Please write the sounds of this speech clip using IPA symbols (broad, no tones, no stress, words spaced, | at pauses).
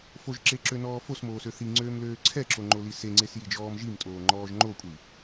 foʒǁeǁønɔː fosmoːsø θiŋ͡ǀøːmløː ǀʰɛǁoŋ͡ǃoli seŋ͡ǀesjid͡ʒɔːm ʒimtʼoːŋ͡ǃɔːʒ ŋ͡ǃokʷʼi